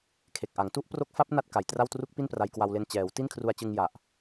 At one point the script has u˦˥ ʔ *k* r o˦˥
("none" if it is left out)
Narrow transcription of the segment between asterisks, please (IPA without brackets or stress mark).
p